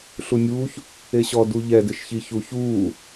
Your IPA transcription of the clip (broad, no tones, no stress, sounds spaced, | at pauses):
ɬ u nʲ uː ç | e ɕ ɔ d u ʎ ɛ d ɪ ʃ ç i ç u ç uː